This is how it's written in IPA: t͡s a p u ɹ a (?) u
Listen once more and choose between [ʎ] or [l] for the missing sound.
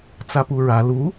l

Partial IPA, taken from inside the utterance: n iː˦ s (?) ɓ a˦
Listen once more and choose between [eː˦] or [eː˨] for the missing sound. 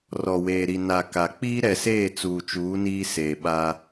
eː˨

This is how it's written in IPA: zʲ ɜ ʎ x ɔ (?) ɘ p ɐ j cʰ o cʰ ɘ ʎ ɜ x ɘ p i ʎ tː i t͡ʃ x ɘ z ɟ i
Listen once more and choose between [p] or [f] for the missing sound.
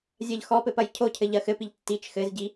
p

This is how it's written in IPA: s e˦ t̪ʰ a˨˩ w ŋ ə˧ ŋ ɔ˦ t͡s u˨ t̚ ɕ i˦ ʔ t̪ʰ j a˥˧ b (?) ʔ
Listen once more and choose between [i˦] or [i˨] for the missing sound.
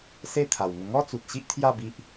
i˦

